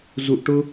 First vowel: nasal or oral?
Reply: oral